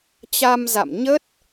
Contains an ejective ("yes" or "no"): no